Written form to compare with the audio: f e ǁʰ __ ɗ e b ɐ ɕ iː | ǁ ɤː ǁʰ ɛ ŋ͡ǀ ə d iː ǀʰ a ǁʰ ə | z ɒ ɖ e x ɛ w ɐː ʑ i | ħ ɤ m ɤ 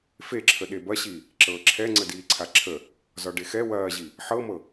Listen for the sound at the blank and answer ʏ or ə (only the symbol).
ə